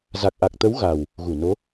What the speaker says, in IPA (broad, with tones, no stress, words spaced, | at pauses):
za˨˩k̚ʔa˨˩k̚t̪ə˨˦w ɣa˨˩w | ɣu˧˩no˨˦